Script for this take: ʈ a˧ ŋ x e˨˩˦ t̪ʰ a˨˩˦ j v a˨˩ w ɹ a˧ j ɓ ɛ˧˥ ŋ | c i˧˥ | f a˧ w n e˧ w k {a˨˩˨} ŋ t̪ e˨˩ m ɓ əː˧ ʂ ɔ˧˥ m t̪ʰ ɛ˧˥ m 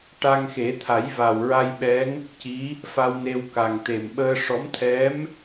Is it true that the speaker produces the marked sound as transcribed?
no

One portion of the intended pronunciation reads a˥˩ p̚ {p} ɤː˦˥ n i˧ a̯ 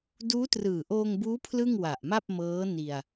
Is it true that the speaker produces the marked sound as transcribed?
no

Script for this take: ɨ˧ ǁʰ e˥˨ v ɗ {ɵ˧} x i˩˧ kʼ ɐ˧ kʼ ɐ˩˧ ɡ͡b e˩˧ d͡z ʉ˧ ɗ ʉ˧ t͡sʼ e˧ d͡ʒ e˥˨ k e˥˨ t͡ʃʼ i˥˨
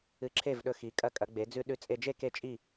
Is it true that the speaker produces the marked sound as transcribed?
yes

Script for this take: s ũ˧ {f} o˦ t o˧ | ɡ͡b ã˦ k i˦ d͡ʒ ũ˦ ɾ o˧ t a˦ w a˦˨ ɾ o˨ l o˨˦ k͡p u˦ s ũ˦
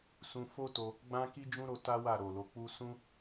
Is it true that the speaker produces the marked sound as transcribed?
yes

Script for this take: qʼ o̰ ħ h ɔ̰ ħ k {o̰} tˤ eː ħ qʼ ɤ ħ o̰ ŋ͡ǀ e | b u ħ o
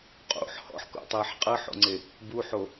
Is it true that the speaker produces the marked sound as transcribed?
yes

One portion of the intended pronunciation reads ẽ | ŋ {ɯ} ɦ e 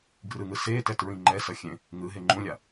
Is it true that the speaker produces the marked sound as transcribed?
yes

